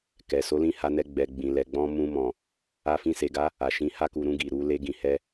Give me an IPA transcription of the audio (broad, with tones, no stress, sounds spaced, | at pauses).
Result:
k ɛ˨ s o˨˦ l ĩ˦˨ h a˧ n ɛ˧ ɡ͡b ɛ˨ ɡ͡b ĩ˨ l ɛ˨ ɡ͡b ɔ̃˧ m ũ˧ m ɔ̃˨ | a˧ f ĩ˧ s e˨ ɡ a˨˦ | a˨ ʃ ĩ˨˦ h a˧ k u˨ ɾ ũ˧ ɡ i˨ ɾ u˨˦ l e˧ ɡ ĩ˨ h ɛ˧